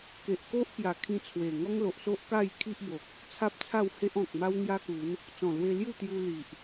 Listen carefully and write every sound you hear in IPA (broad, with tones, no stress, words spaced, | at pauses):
ke˨ʔko˦ʔ pja˨˩kʰĩ˧ t͡sʰwe˨˩ ŋɔ˦ŋlo˨ʔso˦ʔ ka˥˧jkʰi˦ʔbo˨k̚ | t͡sʰa˦p̚t͡sʰa˥˧w he˦ʔɔ̃˨k̚ma˦w ŋja˦ku˨˦n | t͡sɔ̃˨˩lwe˧ lju˥˧t̪ju˧ li˨ʔ